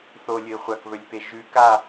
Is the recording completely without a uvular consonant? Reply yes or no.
no